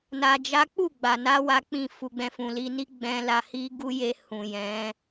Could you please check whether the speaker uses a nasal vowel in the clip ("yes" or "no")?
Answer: yes